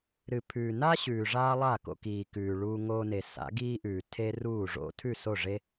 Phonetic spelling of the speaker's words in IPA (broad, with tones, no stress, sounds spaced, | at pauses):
ɾ ɨ˨ pʰ ʉː˨ n a˦ ɕ ʉː˨ ʐ aː˦ lˠ a˦˨ k o̰˧ k iː˨ k ʉː˨ ɭ uː˧ ŋ oː˧ n e˨ s a̰˨˦ ɡ iː˦ ʔ ʉː˨ tʰ e˦ r uː˦˨ ʐ o̰˦ tʰ ʉ˦˨ s o˦˨ ʐ e˦